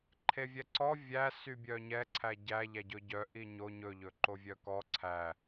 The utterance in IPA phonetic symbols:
ǃʰ e vʲ ɛ ǀ ɔ vʲ æ s y bʲ œ ɲ ɛ ǀʰ æ ɟ æ ʎ æ ɟ ɵ ɟ œ ʔ i ɲ o ɲ ɵ ʎ ɵ ǃ o vʲ œ k ɔ ǀʰ æ

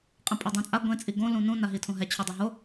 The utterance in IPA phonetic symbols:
qʼ ẽ pʼ a dˤ õ t͡sʼ a ɡʷ ẽ t͡sʼ i ɡ õ l ũ n ũ n a ɦ i tʰ õ ɦ ɛ t͡ɕʰ o dˤ a ɦ o

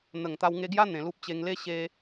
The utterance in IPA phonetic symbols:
n̪ ə˨˩ ŋ t̪ a˧ w ŋ e˧ ɡ j a˦ n̪ ẽ˨˩ l u˦ p̚ t͡ɕ e˧ ŋ l e˦ ɕ e˧

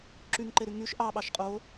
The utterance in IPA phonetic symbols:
ǁ y ŋ ǃ e ɾ y ŋ y ʃ ʔ ɑ ɓ ɑ ʃ qʼ o

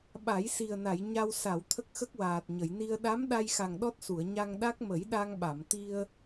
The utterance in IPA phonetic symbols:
ɓ a˨˩˦ j s i˨˩ ə̯ n a˨˩˨ j ɲ a˧ w s a˨˩˨ w t̪ʰ ə˦˥ k̚ x ə˦˥ k̚ w aː˨˩ t̚ ɲ ə˨˩˨ j n i˧ ə̯ ɗ a˧˥ m ɗ a˧ j x a˨˩ ŋ ɗ ɔ˦˥ t̚ s u˨˩˨ ə̯ ɲ a˧ ŋ ɗ a˦˥ k̚ m ə˨˩˦ j ɗ a˧ ŋ ɓ a˨˩˨ m t̪ i˧ ə̯

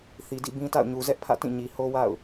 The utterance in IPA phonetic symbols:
θ i˨ d ḭ˦˨ b ĩ˦ t a̰˦˨ ʊ̯ ɲ u˨ z ɛ˦ ʔ pʰ ä̰˦˨ t ĩ˦˨ ɲ i˨ h o˦ w a̰˦˨ ʊ̯

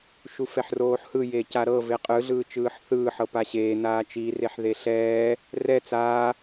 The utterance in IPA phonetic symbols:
ʃ u f ɛ ħ r oː ħ h ɯ j eː c a ɾ ɤ v e qʼ ɯ ɮ ɯː t͡ʃ ɯː ħ θ ɯː ħ ɤ p a ɕ eː n aː t͡ʃ i r e ħ ð e ɬ ɛː | r ɛ t͡s aː

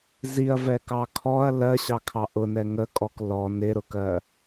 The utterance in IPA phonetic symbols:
z i ɐ̯ v ɛ k ɑ kʰ ɔ ɐ̯ l ɜ ɕ ɑ kʰ ɑ ʔ ʊ n ɛ ŋ ə kʼ ɔ k l ɔ n ɪ ɾ ʊ k ɜ

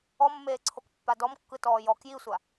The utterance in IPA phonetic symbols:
ɔ mː eː ǀʰ o k pː a d ɔ m kː ɯ t ɔː j ɔ k j i sʷ a

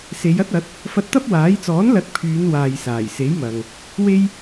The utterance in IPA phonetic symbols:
s e˨˧ j ɐ˥ t̚ ɐ˨˥ t̚ | f ɐ˧ t̚ t̪ ɐ˥ p̚ w aː˨˥ j t͡s ɔː˨˥ n l ɐ˨˥ t̚ pʰ yː˨˧ n w aː˨ j s aː˨˩ j s e˨˥ j m ɐ˨ ŋ | w e˥ j

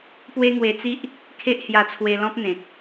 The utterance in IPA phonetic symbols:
p w e˦ ŋ w e˧ t͡s i˦ ʔ | kʰ e˦ ʔ h j a˧ t͡sʰ w e˧ l ɔ̃˦ p̚ n̪ ẽ˨ k̚

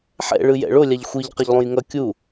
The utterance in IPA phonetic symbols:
ħ ɛ̰ ɭ ɯ j ɛ̰ ɭ o lʲ a ʎ xʷ i ʎ q ʌ ʎ lˠ ũ j ŋ ʌ kʲ u

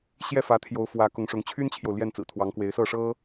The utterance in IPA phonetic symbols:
ɕ j ɛ˥˩ f ä˧˥ t̪ʰ j o˧˥ ʊ̯ f w ä˧˥ k ʊ˧˥ ŋ ʂ ʊ˧˥ ŋ t͡ɕʰ y˥ n t͡ɕʰ j o˨ ʊ̯ l j ɛ˥˩ n t͡s ɹ̩˨˩ t̪ʰ w ɑ˧˥ ŋ k w e˧˥ ɪ̯ s ɤ˥˩ ʂ ɤ˥

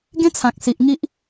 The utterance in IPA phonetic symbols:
ɡ ẽ˦ t͡sʰ ã˨ k̚ s i˨ ʔ ŋ i˦ ʔ

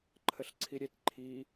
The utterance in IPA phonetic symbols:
ǃʰ ə ɬ ǀʰ i ɾʲ e t ǃʰ i

